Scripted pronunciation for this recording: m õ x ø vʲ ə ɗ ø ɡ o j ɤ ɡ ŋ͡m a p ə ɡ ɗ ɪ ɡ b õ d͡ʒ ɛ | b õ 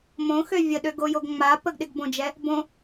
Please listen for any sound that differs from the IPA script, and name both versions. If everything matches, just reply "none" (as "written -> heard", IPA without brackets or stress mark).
ɤ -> o